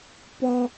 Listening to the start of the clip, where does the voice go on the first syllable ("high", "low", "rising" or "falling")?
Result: high